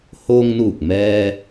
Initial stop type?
plain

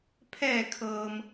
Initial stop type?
aspirated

